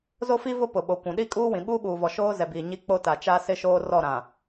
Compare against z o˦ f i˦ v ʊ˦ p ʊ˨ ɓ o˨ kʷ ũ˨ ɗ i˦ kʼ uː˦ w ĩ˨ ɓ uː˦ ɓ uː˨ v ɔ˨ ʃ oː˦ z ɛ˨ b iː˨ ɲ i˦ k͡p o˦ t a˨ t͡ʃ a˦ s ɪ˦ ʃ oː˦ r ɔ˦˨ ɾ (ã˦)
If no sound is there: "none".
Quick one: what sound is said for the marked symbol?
ã˨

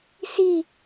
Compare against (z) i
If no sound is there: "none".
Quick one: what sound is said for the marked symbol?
s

